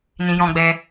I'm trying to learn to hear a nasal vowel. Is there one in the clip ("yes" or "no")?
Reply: yes